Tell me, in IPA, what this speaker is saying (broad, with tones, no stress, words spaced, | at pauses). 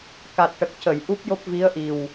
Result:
ka˨˩t̚ʈə˨˩k̚cə˨˩˨j ʔu˦˥p̚jo˦˥p̚ vi˧˥ə̯ʔi˨˩w